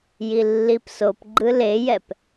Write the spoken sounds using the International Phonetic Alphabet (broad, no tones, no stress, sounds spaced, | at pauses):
j i lː i p s o p ɡ͡ǃ ɯ l e j ɛ p